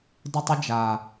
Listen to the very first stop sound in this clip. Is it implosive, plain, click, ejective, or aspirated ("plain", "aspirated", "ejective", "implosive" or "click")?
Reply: plain